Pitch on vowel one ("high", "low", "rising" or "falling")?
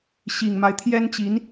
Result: low